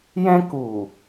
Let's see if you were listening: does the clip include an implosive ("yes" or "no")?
no